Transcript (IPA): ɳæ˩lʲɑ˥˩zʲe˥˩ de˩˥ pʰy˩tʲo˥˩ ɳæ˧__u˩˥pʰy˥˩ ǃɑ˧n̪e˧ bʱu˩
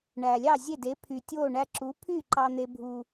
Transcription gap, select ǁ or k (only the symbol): ǁ